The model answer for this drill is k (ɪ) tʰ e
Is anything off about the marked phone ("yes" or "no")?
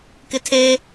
no